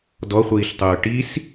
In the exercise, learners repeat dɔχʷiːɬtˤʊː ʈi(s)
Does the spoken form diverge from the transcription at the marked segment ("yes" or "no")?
no